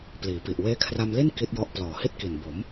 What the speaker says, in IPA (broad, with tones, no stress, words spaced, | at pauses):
pliː˩˦pi˨˩ʔ weː˦˥kʰra˧mli˥˩n ki˦˥t̚jɔ˦˥ʔ plɔː˨˩hi˥˩t̚ki˨˩n bo˩˦m